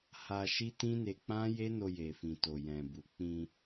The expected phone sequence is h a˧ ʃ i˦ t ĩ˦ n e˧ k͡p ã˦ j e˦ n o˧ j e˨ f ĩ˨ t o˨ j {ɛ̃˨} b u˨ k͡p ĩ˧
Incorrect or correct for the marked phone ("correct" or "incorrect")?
correct